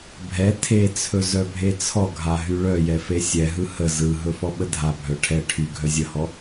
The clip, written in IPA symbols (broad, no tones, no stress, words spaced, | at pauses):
bʱɛ tʰet͡sʰɵ zœbʱet͡sʰɔɡʱa ɦyɭœjɛ fesʲɛɦɯ hə zɯɦɵ fɔɓədʱabʱœ ʈʰɛ ʈʰy ɡʱœzʲəhɔ